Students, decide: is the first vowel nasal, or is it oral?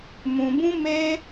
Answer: nasal